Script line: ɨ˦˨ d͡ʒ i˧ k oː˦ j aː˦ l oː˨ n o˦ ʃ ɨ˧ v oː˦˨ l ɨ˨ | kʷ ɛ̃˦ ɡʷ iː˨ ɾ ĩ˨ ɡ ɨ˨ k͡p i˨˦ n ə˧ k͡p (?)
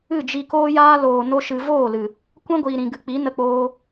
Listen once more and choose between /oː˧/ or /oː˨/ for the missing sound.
oː˧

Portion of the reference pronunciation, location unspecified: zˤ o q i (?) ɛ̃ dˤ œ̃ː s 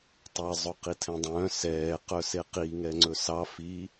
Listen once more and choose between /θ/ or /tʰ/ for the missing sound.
tʰ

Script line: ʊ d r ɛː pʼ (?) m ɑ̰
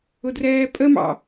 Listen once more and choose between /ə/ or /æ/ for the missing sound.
ə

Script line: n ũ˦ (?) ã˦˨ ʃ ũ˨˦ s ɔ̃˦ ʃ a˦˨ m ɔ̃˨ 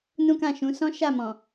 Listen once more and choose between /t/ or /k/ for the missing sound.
k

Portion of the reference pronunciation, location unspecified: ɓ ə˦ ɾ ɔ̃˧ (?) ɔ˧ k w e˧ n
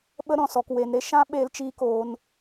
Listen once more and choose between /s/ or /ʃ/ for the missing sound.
s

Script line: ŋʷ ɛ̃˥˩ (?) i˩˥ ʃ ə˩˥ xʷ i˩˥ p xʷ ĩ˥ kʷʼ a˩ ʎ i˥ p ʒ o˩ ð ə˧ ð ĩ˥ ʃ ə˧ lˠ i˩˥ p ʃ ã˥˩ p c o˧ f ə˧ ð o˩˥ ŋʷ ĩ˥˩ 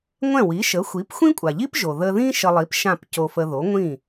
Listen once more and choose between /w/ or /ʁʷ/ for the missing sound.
w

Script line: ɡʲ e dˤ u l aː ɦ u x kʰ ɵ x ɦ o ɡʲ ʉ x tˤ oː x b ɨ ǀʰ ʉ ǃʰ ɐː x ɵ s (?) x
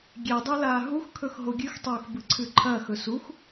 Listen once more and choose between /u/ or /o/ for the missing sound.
u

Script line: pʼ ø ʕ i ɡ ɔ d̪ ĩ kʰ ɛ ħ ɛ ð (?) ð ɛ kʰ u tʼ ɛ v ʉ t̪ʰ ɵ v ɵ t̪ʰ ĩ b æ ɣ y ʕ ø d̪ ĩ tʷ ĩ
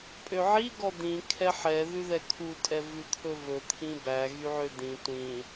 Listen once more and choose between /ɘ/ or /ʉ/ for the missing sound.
ʉ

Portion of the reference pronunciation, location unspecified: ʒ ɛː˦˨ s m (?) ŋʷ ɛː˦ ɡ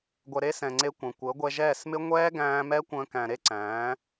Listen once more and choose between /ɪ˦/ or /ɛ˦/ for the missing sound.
ɪ˦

